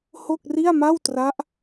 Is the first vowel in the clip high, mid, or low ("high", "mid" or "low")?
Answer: mid